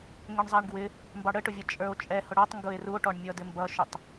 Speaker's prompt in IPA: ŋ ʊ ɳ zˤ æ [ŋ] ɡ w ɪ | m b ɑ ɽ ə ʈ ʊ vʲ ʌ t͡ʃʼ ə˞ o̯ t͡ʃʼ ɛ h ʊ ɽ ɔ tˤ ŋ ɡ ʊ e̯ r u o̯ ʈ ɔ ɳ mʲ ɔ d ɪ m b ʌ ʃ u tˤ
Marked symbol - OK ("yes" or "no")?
no